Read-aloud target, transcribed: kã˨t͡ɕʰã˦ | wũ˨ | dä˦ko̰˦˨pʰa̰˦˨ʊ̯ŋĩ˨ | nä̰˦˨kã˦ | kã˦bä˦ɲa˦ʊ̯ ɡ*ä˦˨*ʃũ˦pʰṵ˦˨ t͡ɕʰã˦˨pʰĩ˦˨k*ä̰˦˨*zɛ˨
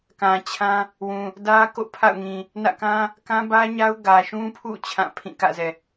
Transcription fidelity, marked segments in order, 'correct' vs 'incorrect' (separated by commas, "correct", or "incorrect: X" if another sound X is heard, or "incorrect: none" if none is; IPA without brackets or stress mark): incorrect: ä˨, correct